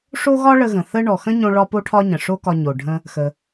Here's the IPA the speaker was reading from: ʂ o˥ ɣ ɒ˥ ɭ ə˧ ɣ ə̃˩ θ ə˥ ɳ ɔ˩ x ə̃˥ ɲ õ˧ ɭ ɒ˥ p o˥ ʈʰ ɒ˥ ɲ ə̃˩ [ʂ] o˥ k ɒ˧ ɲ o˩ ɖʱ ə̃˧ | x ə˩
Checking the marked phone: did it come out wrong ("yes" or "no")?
no